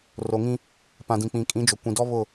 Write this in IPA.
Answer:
r o˨ ŋ ĩ˦ | p ã˨ d ĩ˨ k͡p ĩ˨ kʼ ĩ˨˦ d͡ʒ o˨ kʷ ĩ˨ d ɔ˦ β ʊ˦˨

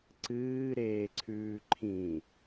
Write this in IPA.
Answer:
ǀ ɨː ɾ eː ǀʰ ʉː ǃʰ ĩ

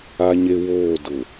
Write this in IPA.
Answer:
a˦ ɲ e˦ w oː˦˨ d ʊ˨

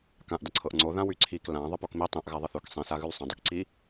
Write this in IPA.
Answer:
k ã ʔ d ə ǀʰ ɤ ʔ ŋ͡ǀ o ð ã w y ǀʰ i k l ã ðˤ ə p o k m i tˤ ĩ ʔ ɣ a ðˤ ə θ ʉ k sˤ ĩ s a ɣ ʉ l sˤ ə̃ dˤ ʉ k ǀ i

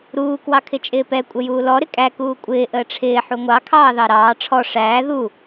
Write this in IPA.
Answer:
ɾ uː k w ɑ kʰ ɪ t͡ʃʼ ɪː p ɛ kʷʼ ə j uː l ɔ ɾ ɪ kʼ æ k uː kʷʼ ɪː ʔ əː ʈ͡ʂʰ ɪː ħ u ŋʷ ɑ kʰ ɑː ð ɑ ɾ ɑː ʈ͡ʂʰ ɔ ʂ æː ð u

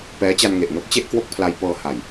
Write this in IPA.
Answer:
p ɛː˦˥ t͡ɕ a˧ n ŋ e˨˩ ʔ n o˦˥ k̚ t͡ɕ e˥˩ ʔ k w o˥˩ k̚ pʰ l a˧ j p ɤː˧ h a˨˩ j

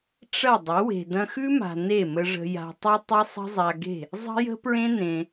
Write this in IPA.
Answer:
ʈ͡ʂ ɐ˦˨ dˤ ə˨˦ w e̤˨ d ɐ̃˧ x ʉ˦ m a̤˨ n e˦˨ m ə˧ ʐ ə̤˧ j a̤˧ tˤ ə˦ tˤ ɐ˦ sˤ ə̤˦ zˤ a˧ ɡ e̤˦˨ | zˤ ə̤˦ j ə̤˦ p ɹ ẽ˦ n ẽ˧

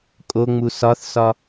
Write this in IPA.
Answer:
kʼ o ŋ͡m u s ɒ θ s ɒ

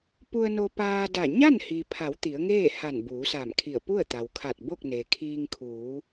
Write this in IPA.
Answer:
p u˧ ə̯ n o˧ p aː˧ d a˧˩ ɲ a˥˨ n h i˩ pʰ a˩˧ w t̪ i˩˧ ə̯ ŋ eː˥˨ h a˧˩ n b uː˩˧ s a˧˩ m kʰ i˧˩ ə̯ p u˥˨ ə̯ t̪ a˩ w kʰ a˧˩ t̚ b o˥˨ k̚ n e˩ kʰ iː˧ ŋ kʰ uː˩˧

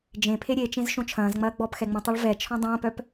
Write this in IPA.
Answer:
d͡ʒ ẽ pʰ e ɾʲ e t͡ʃ ẽ z ʃ õ t͡ʃʰ ɐ̃ː z ŋ͡m ɐː ɡ͡b ɔ p x ɛ ŋ͡m ũ tˤ ɒ ɭ v ɛ t͡ʃʰ ɔ̃ dˤ ɐ̃ː p œ p

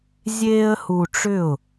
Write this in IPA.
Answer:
zʲ eː˦ ə̯ h u˧ ʈ͡ʂ ʏ˦˨ ʊ̯

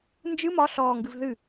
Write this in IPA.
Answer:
n d͡ʒ ɨ m ɒ ɬ ɔː ŋ ɡ ɨ v ð ɨ

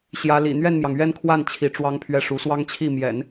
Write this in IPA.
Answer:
ɕ j ä˧˥ l ḭ˨˩ n̪ ɥ ɛ˥˩ n m j ɑ˩ ŋ ɥ ɛ˥˧ n kʰ w a˥˩ n t͡ɕʰ i˧˥ ʈ͡ʂ w ɑ˥ ŋ pʰ ɥ ɛ˥˩ ʂ u˧˥ s w ɑ˥ ŋ t͡ɕʰ i˥˩ m j ɛ̰˨˩˦ n

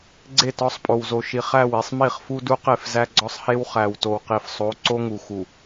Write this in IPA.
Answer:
ɡ͡ǀ e˦˨ t ɒ˦ sˤ pʼ o˨ w z o˨ ʃ i˨ χ æ˦˨ w i˨ sˤ m i˦˨ χ f u˦ d u˦ q e˦˨ f z æ˦ ɡ͡ǀ ɒ˦ sˤ h e˦ w χ æ˨ w t o˨ w q i˨ f sˤ o˨˦ ǀ o˦ ŋ u˨ x u˨

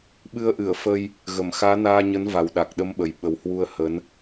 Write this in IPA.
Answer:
ɓ ɨ˧ ə̯ ʔ ɨ˧˩ ə̯ f ə˧ j | ɣ ə˧˩ m x aː˨˦ n aː˧ ɲ ə˨˦ n v a˨˩ w ɗ a˨˩ k̚ ɗ ə˧ m ɓ ə˨˩ j ɓ ə˨˩ w h w u˧ ə̯ h ə˨˦ n

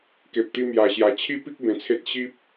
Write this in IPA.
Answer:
k e˨ p̚ t̪ i˧ m j a˧ ɕ j a˧ t͡ɕʰ i˦ p i˦ k̚ b ẽ˧ t͡sʰ e˦ t̚ ɕ i˦ p̚

